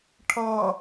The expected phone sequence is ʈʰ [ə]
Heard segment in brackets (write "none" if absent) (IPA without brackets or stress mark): ʌ